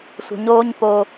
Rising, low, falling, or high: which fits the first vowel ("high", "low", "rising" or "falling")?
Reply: low